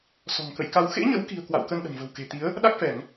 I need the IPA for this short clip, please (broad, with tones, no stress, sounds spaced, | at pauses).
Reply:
s ɔ̤˨˩ ŋ k ə̰˧˨ j k a˧ w x ḛ˧˥ ɲ ə̰˧˥ w k i̤˨˩ ə̯ k w a̰˧˨ w k ə˧ n ɗ ə̤˨˩ n v ə̤˨˩ w k e̤˨˩ t̪ i˨˦ ə̯ | ɗ a˦˥ k̚ f ɛ˧˩˨ ŋ